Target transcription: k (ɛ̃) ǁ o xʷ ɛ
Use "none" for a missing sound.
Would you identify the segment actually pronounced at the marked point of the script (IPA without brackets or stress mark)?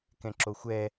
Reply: ɛ̃